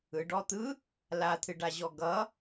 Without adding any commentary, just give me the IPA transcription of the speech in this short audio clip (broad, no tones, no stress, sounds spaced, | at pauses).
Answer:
ɯ ɖ ɔ t̪ ɯ | l a t̪ʰ ɨ ɖ a ʑ ɔ ɡ ʌ